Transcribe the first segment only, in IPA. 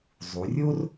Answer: zˤ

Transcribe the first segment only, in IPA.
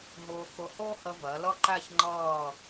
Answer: ɦ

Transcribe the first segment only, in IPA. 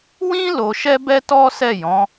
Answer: w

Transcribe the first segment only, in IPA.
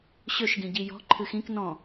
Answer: ɕ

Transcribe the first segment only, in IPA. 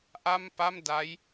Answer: ʔ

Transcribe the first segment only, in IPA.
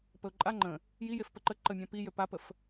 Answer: p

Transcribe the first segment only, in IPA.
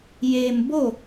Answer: j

